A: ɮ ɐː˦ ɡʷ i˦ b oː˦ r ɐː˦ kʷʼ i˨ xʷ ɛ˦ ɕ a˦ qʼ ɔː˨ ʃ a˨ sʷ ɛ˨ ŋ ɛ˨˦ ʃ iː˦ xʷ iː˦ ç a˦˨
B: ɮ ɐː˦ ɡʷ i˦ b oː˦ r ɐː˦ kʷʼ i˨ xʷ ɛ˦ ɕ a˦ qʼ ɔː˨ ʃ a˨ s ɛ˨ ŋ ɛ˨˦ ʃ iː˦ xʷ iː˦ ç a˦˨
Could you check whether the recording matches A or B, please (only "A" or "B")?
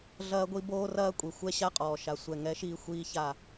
A